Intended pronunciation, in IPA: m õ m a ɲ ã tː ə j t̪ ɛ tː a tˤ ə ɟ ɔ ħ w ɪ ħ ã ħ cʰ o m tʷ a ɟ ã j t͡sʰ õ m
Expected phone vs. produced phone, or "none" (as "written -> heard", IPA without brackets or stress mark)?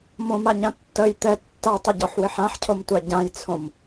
none